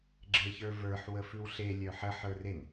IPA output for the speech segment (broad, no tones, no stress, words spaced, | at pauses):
ɡ͡ǁeçə˞və˞ħ wəfʉwɬe lʲœħə ħə˞ren